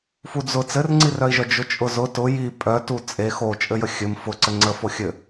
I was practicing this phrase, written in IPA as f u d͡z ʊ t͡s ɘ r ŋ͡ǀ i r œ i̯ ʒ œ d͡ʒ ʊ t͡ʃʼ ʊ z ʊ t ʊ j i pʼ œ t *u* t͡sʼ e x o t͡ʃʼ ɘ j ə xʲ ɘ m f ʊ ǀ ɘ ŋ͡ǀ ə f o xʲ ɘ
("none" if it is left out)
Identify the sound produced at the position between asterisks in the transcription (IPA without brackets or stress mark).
u